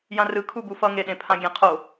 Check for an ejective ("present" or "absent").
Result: absent